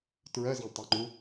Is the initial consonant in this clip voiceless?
yes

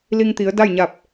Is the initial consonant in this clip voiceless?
no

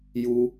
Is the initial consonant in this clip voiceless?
no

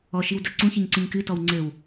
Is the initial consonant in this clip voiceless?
yes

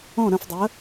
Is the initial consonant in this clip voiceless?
no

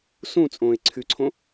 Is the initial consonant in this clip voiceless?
yes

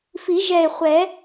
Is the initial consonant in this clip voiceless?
yes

